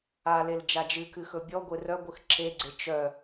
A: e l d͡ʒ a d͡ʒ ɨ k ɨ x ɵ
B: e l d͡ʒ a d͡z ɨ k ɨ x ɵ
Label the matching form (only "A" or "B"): A